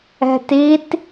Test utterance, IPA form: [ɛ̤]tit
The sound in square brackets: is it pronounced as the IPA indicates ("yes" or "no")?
yes